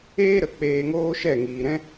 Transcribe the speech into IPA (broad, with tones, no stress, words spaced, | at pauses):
eː˧ ɾə˨ k͡peː˧ŋoː˦ʃɛ˦˨ ŋiː˨ɾɛ̃˦